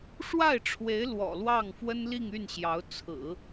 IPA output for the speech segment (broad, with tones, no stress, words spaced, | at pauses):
ʂwa˥˩ɪ̯ʈ͡ʂʰwe˧˥ɪ̯ lwɔ̰˨˩lwɑ˥˩ŋ fwə˥nli˥˧ŋ y˥˩nɕjɑ˧˥ʊ̯ t͡sʰɹ̩˨˩˦